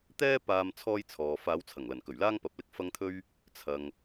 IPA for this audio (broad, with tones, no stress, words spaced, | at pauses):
t̪ɛː˥ paː˧m t͡sʰɔː˥jt͡sʰɔː˨ faː˨˧wt͡sʰɐ˨˩ŋlɐ˨˩nkɵ˨˩ɥ laː˥ŋpɐ˨˥p̚lɪ˧k̚ fɐ˧ŋt̪ʰɵ˧ɥ | t͡sʰɐ˨ŋ